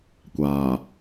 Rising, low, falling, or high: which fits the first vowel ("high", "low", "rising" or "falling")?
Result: low